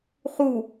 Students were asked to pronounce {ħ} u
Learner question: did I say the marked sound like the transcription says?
no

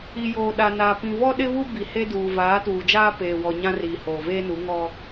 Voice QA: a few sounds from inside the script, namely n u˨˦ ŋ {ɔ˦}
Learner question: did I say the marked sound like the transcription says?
yes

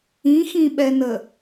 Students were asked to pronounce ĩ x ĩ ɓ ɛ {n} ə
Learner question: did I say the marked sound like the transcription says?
yes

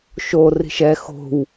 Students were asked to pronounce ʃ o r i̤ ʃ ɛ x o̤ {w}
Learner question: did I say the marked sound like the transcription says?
yes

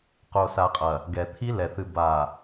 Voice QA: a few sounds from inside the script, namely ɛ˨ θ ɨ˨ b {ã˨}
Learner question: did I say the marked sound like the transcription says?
no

